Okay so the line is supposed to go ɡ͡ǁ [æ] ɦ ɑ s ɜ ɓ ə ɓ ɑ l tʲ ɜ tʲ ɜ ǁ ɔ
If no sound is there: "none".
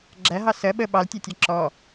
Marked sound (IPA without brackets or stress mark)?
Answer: æ